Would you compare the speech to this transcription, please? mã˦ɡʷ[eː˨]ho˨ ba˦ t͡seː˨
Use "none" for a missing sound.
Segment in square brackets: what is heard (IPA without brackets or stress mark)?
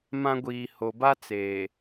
iː˨